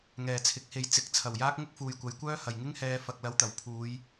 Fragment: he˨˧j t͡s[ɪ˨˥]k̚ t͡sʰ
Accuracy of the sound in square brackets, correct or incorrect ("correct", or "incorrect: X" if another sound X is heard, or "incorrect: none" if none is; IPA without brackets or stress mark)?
correct